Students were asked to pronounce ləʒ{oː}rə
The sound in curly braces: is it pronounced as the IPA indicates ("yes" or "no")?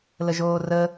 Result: yes